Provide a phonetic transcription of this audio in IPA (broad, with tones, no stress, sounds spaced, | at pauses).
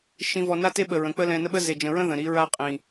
ʃ ĩ˨ v ɔ˨ n a˦ t e˦ ɓ ə˨ ɹ ə̃˨ k͡p ə˦ l ɛ̃˨ n ə˦ ɓ ə˦ z e˨ d͡ʒ ə̃˨ ɹ ə̃˦ ð ə̃˨ ɾ i˨˦ ɹ a˦ qʼ ĩ˨